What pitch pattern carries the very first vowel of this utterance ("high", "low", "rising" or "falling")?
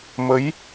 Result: rising